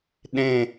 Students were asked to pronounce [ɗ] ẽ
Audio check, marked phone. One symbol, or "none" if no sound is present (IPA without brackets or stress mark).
ɗ